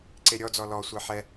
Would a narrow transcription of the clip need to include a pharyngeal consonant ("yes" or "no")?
yes